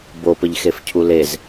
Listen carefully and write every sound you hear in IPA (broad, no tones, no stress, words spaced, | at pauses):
bopəʎxefcʰu lez